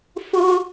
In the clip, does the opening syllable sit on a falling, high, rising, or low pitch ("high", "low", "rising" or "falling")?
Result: high